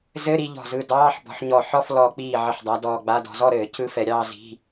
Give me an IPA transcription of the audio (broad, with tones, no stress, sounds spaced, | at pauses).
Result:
z ɘ˧˥˧ ɾ i˥˧ ʎ ɔ̤˧˩ z ɯ˧˩ d ɑː˧˥˧ ħ b ɔ̤˨˦ ħ ɲ ɔ˧˩ ħ ɔ˥˧ f l ɔ˨˦ k͡p iː˧˩ ʕ ɘ˧˩ ħ dˤ a˨˦ d ɔː˧˩ ɡ͡b a˧˥˧ d ɔ̤˨˦ z ɔ˥˧ ɾ ɘː˨˩˦ cʰ ɯ˧˥˧ f ɛ˨˩˦ ɾʲ ɑː˥˧ z i̤˧˥˧